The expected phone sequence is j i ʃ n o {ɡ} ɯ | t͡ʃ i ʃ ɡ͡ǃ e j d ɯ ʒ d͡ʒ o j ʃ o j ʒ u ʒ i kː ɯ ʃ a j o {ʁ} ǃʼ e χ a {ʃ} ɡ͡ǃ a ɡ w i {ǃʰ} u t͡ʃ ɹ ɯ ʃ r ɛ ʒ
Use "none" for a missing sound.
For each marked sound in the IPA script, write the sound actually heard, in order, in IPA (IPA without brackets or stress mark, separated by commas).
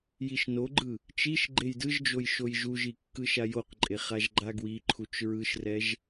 ɡ͡ǃ, q, ʒ, ǃʰ